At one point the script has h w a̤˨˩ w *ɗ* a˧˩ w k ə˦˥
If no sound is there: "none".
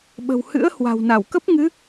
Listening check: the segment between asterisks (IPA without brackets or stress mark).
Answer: n